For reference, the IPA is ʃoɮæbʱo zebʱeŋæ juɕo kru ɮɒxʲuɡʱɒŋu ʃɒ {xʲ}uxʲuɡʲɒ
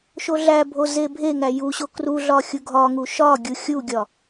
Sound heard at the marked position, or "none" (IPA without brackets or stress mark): ɡʲ